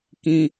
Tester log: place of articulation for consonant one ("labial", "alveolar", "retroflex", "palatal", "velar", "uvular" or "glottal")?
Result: velar